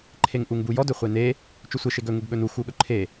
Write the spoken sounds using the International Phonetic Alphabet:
ǃʰ e ŋ ʔ u ŋ b u j ɔ d ɵ χʷ e n e | t͡ʃ ɵ sʷ e ʃ e ɡ ɵ ŋ u ɡ ɠ ɵ n u x u ɠ ɵ ǃʰ e

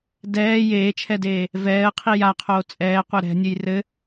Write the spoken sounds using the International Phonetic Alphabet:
d ɛː j eː t͡ʃʰ ɛ d eː | v ɛː ə̯ qʰ i j a qʰ oː t͡sʼ ɛː qʷ ɛ ɾ ɛ̤ nʲ ɘ j r ɘ

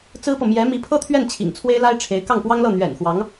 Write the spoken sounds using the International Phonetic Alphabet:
t͡s ɹ̩˥ p ɤ˨ m j ɛ˧˥ m i˧˥ pʰ ɤ˥ t̪ʰ ɥ ɛ˥˩ n t͡ɕʰ ḭ˨˩ ŋ t͡sʰ w e˥ ɪ̯ l a˥ ɪ̯ ʈ͡ʂʰ e˧˥ ɪ̯ k ɑ˥˩ ŋ p w ɑ˥ ŋ l ɤ˥˩ n̪ ɥ ɛ̰˨˩ n x w ɑ˧˥ ŋ

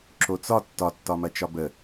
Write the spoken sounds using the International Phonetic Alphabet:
ǁ o t͡s ɒ tː ɒ tː ɒ m ɐ t͡ʃ ɒ b ə

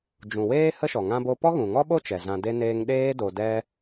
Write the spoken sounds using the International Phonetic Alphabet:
d͡ʒ ũ˨ w eː˦ h ə˦ ʃ ɔ˨ ŋ ã˦ b o˦ p ɔ˦ ɣ ũ˨ ŋ ɔ˦ ɓ o˦ t͡ʃ ɛ˨ z ã˧ d e˦ n eː˦ ŋ ɗ eː˦ d o˧ d ɛ˦

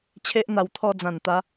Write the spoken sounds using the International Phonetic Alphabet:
t͡ɕʰ e˦ ʔ n̪ a˧ w t̪ʰ ɔ˧ d͡z ã˨˩ n t̪ a˨˦

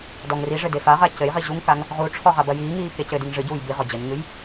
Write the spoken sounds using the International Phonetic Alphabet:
d ɔ ŋ r i ʐ ɘ d e f a ʁ a c ɘ j ʁ i ʑ u ŋ k a ŋ | ʁ u ʈ͡ʂʰ ɔ ʁ a b ɐ j iː ŋ iː k e c ɘ d i ŋ ʐ ɨ ɟ uː j b i ʁ ɔ d͡ʑ ɐ ɲ ŋ ɨ j

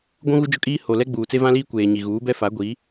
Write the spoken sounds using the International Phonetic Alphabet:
ɡʷ ũ˦ ɣ u˦ d͡ʒ ʊ˦ kʼ iː˦ h o˨ l ɛ˦ ɡ͡b uː˨ t͡s e˦ v ã˦ l iː˦ kʷ eː˨ ɲ i˨ ɣ uː˨˦ b ɛ˦ f a˨˦ ɡʷ i˨˦

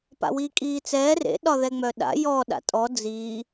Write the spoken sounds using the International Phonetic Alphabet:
p a̰ w iː kʼ iː t͡s ɛː r ḛ ɗ ɒ ð ɛ ŋ͡m œ ɗ a̰ j ɔ ɗ a̰ tʼ ɔ d͡z iː

